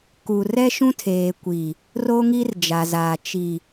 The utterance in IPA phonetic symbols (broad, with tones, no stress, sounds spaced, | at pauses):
k u˨ r ɛ˦ ʃ ũ˦ tʰ eː˨ kʷ i˨ | r o˦ ŋ i˦ r d͡ʒ a˨ z aː˨ t͡ʃ i˨